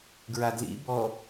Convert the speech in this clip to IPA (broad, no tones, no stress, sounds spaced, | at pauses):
ɡ ɹ a d l ḭ b ɔ